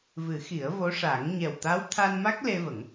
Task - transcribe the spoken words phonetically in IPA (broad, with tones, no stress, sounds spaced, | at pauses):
v ɨ˨˩˦ x i˨˩˦ ə̯ v o˧˥ ʂ a˨˩˦ ŋ ɲ ɛ˨˩ w t̪ a˧˥ w t̪ʰ a˧ n m a˦˥ k̚ l e˧ v ə˨˩˦ ŋ